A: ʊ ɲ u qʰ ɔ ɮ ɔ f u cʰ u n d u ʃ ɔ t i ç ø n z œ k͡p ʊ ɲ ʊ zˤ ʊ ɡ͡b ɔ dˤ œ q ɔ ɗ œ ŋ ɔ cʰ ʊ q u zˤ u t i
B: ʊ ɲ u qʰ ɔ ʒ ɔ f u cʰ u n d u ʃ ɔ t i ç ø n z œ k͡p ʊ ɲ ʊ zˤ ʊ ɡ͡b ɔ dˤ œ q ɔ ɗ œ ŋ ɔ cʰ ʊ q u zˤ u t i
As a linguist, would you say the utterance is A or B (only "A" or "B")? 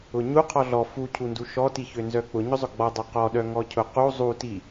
A